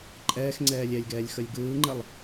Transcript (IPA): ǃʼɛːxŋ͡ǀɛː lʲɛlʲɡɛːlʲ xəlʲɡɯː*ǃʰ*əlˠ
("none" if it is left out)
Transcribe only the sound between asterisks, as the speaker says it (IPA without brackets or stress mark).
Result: ŋ͡ǃ